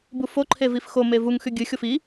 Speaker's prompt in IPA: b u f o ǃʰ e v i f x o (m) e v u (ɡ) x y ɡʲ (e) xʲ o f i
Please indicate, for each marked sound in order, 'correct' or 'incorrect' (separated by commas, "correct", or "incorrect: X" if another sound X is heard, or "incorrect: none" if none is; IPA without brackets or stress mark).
correct, incorrect: ŋ, incorrect: ɨ